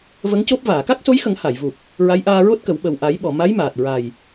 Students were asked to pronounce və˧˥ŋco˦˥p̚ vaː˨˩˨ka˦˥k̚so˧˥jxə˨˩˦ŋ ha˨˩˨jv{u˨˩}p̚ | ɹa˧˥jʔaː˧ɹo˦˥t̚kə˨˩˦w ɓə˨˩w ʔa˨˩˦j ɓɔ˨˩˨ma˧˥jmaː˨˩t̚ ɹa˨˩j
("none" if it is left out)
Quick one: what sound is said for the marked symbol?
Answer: u˨˩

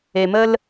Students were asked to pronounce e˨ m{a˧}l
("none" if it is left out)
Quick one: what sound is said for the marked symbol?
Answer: ə˧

